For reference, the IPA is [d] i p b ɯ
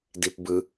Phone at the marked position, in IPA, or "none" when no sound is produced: d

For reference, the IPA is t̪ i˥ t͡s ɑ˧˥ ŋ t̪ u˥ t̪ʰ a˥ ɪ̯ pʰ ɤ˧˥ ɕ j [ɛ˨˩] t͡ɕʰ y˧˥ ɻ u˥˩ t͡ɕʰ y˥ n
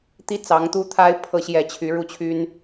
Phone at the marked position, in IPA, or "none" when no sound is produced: ɛ˨˩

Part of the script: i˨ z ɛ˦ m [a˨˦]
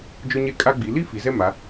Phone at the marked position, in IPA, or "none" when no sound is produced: a˨˦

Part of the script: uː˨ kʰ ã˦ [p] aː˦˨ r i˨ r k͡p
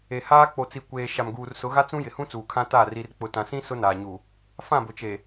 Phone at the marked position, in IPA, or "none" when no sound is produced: t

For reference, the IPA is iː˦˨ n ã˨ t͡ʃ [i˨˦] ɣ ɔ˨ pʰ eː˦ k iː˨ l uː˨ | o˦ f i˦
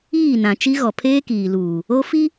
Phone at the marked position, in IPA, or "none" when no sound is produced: i˦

